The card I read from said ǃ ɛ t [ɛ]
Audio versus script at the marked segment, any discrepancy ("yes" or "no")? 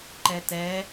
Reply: no